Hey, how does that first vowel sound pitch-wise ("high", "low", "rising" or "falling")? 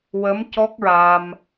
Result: rising